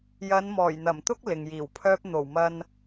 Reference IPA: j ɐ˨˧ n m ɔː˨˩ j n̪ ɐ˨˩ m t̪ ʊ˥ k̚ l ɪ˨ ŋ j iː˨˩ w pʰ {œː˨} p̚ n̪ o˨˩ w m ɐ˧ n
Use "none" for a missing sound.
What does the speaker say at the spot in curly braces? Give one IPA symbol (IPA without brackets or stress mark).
œː˥